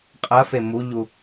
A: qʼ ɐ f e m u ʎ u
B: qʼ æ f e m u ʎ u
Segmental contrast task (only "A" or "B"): A